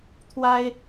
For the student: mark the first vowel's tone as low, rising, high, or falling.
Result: high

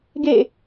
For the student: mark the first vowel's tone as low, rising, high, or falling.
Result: falling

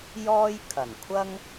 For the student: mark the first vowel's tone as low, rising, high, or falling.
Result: high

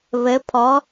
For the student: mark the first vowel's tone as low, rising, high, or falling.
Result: rising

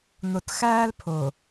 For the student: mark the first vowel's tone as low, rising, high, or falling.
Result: low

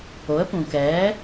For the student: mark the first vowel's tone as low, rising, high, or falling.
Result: rising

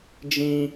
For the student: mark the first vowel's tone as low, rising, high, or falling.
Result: high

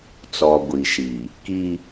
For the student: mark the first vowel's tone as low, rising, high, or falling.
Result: low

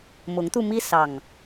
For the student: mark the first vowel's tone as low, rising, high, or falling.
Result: rising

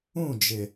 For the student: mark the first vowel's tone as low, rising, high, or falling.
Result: falling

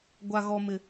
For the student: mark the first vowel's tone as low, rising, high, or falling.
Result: low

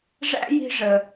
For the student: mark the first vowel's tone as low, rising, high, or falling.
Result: high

